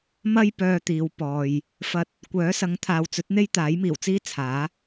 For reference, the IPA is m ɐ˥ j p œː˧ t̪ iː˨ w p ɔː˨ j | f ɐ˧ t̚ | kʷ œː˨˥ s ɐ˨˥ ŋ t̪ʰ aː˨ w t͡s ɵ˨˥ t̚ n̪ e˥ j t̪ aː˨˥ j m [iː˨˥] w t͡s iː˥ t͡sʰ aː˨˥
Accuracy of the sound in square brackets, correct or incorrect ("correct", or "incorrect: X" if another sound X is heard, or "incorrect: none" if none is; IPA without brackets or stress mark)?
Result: incorrect: iː˨˩